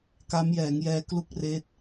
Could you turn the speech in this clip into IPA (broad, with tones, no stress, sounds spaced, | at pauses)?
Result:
k a˦˥ m j ɛː˩˦ ŋ j ɛː˦˥ k l u˥˩ k̚ r eː˦˥ t̚